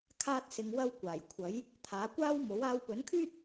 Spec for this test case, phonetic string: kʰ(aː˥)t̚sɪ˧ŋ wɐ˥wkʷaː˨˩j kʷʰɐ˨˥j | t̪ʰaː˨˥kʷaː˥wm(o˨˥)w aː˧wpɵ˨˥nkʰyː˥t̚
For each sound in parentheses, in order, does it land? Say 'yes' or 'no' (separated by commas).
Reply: yes, yes